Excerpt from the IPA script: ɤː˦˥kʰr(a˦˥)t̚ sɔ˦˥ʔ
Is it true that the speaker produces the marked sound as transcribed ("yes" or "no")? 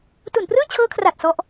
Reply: no